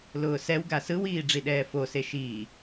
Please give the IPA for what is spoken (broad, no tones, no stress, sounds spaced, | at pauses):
l ʊː s ɛ w ɡ a s ɯ w iː ɖ͡ʐ i ɗ ɛː f o s e ʃ iː